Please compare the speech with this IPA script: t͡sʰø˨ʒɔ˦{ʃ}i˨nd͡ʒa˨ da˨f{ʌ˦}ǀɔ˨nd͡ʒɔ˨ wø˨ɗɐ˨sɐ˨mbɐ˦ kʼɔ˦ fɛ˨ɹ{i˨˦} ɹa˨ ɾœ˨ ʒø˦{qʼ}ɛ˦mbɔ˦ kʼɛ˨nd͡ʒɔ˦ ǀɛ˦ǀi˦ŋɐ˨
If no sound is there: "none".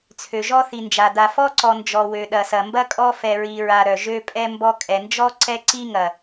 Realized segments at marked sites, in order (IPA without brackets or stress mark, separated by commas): θ, ɔ˦, i˨, pʼ